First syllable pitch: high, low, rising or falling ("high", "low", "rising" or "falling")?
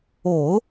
low